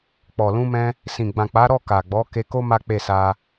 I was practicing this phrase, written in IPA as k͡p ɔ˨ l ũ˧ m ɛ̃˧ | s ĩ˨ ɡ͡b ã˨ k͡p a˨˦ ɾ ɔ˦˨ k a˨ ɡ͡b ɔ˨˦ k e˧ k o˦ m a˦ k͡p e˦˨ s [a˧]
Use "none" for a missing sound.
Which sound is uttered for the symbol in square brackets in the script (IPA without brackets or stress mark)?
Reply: a˧